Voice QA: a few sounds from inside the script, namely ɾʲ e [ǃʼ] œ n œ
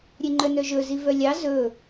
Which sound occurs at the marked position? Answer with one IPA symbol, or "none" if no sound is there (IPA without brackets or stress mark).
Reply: ŋ͡ǃ